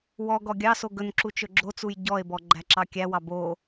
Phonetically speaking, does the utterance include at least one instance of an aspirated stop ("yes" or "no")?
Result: no